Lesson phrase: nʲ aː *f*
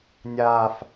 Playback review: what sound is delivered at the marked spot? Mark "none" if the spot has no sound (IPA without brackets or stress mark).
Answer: f